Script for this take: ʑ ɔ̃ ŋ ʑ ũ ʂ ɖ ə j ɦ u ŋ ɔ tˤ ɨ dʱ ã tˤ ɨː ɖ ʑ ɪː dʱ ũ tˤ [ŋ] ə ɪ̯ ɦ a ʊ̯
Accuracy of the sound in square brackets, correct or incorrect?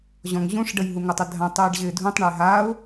incorrect